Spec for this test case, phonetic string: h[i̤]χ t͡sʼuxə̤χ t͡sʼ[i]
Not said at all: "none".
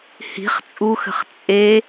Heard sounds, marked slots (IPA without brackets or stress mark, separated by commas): i̤, e